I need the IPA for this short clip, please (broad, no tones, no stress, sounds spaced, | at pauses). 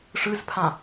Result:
ʂ ɯ z pʰ ã